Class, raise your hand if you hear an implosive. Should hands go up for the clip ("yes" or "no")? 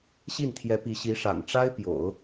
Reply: no